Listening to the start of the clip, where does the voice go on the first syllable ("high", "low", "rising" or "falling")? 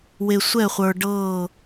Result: low